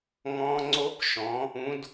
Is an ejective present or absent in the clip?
absent